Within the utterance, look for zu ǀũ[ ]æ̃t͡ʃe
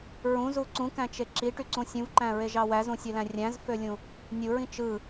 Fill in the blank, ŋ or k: k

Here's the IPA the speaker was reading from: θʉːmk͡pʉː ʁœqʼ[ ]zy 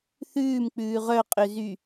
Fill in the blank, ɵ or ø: ø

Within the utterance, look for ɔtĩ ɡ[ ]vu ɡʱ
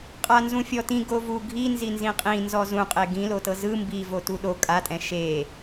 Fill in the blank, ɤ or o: o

